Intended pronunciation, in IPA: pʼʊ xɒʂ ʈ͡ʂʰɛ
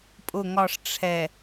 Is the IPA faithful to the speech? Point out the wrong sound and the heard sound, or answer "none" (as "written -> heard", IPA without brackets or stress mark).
x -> ŋ